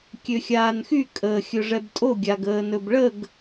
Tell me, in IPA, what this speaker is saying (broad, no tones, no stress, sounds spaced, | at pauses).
kʲ ø xʲ aː n x y kʼ əː xʲ ɵ ʐ ɛ b tʼ o ɡʲ a ɡ əː n ɵ b ɭ ə ɡ